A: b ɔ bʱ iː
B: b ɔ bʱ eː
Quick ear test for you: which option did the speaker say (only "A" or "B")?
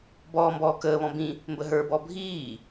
A